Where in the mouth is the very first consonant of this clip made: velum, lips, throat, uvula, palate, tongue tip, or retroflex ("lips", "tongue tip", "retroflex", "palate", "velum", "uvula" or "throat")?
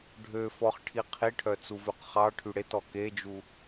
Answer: retroflex